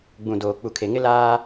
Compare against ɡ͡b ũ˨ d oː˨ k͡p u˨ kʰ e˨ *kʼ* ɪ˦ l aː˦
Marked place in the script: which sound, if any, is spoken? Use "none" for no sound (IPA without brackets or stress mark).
ŋ